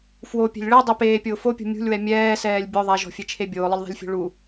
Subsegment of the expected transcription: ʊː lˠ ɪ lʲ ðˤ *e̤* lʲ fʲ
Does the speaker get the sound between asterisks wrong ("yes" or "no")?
no